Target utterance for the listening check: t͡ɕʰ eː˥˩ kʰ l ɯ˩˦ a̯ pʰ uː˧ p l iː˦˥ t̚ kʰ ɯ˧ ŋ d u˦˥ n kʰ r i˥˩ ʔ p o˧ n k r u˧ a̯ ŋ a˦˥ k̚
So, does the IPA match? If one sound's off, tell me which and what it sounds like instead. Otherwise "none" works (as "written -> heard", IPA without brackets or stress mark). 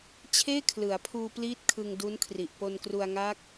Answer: i˥˩ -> i˨˩